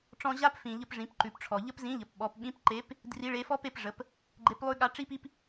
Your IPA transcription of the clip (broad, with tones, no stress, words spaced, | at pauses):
ʈ͡ʂɔ̃˧ʑa˥pfĩ˩ʎə˧p ʐĩ˩˧pǃʉ˩pʈ͡ʂʰɔ˩ ʎə˥pzĩ˧˥ʎə˩˧p ɓɔ˩˧pɓĩ˧˥pǃe˧˥p | dri˧˥ɭe˧˥ fɔ˥pe˧pʐə˩˧p | ɡ͡ǃe˧˥plˠʉ˥ ɠa˧˥ ʈ͡ʂi˥pi˥p